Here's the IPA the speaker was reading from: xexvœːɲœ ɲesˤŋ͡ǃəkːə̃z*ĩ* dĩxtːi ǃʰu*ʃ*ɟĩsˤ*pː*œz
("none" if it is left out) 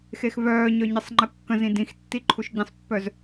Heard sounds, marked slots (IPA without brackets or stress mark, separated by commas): ĩ, ʃ, pː